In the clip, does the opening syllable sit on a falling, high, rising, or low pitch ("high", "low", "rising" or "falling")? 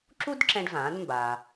high